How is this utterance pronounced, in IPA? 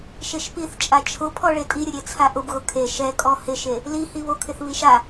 ʃ e ʃ p i θ t͡ʃʼ a t͡ʃʰ ʊ pʰ ɔ ɭ e tʼ i ɾʲ ʊ ɾʲ e t͡sʰ a ʔ ʊ b ɣ ʊ kʰ e ʃ ɛ kʼ ɔ h ɪ ʃ e | l i h i β o kʰ ɪ θ β i ʃ a

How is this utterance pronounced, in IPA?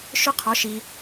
ʃ ʊ˥ qʰ ɔ˧˥ ʃ i˧

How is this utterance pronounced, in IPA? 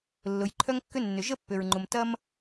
lː ʊ˩ j ǃʰ œ˥ ŋ kː ʏ˥ nː ʏ˩ ʒ ə˥ pː ʏ˩ ɹ ŋ͡ǃ ʊ˩ m t ɐ˦ m

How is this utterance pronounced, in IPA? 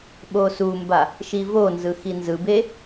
ɓ o s u m b a | ʃ i v o n z ɯ x i n z ɯ b e

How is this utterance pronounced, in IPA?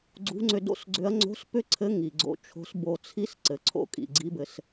ɡ͡ǀ ṳ˧˥ ŋ͡ǀ ʏ˧ d o̰˥ s ɡ͡ǀ ʏ˧˥ ɐ̯ ŋ͡ǀ o̤˧˥ s p ʏ˥ ǀʰ ɘ˧˥ ŋ i˩ ɡ͡ǀ o̰˧ t͡ʃʰ o̤˧˥ s b o˧ t͡sʰ i˥ s ǀ ɘ˩ ǀʰ o̰˥ kʼ ḭ˩ ɡ͡ǀ i˧˥ b ɘ˩˧ s

